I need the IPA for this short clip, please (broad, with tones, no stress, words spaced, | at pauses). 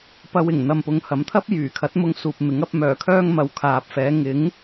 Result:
pɐ˧wɪ˨˩ŋ n̪ɐ˨mpʊ˨˧ŋhɐ˨˥mt̪ʰɐ˥p̚ jyː˨˩kʰɐ˨˥t̚mʊ˧ŋ suː˨p̚mɪ˨˥ŋɐ˨˥p̚ mœː˨˩kʰœː˧ŋ mɐ˨wkʰaː˨p̚fɛː˨˧ ŋɪ˨˥ŋ